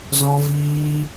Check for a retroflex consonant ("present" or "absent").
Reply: absent